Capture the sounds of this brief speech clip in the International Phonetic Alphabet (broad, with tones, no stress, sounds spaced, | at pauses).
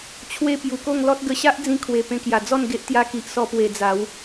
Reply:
t͡ɕʰ w e˦ p j u˨˩ k o˥˧ ŋ l ɔ˦ t̚ ɡ ə˧ ɕ a˦ ʔ d͡z ĩ˧ kʰ w e˨˩ p ẽ˧ k j a˨˩ d͡z ɔ˥˧ n ɡ e˦ ʔ t̪ j a˦ k i˨ ʔ s ɔ˦ p w e˧ d͡z a˨˦ w